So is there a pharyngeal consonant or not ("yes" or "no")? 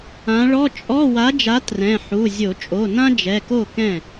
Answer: yes